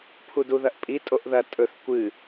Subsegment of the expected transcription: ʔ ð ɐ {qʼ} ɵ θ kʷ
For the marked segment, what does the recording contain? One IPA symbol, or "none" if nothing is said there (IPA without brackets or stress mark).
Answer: tʼ